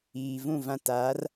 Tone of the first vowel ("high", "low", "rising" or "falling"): low